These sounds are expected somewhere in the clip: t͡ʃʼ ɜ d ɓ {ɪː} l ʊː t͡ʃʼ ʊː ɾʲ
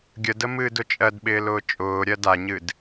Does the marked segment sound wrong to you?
no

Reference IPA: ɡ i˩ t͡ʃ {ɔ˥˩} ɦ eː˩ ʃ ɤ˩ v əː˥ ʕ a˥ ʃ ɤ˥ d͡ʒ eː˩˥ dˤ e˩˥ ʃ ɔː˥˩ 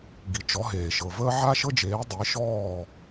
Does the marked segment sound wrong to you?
yes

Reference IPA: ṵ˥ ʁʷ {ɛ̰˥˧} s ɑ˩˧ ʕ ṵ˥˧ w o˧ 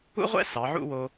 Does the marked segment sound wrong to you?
no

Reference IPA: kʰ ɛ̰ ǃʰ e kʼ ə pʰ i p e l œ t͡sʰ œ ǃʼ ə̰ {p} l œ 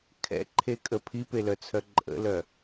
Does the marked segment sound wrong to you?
yes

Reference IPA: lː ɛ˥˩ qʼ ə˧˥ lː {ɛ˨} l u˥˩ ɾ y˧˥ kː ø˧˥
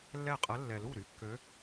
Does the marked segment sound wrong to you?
no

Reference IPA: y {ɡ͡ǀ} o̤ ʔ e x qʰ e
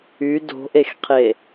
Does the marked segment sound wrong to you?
yes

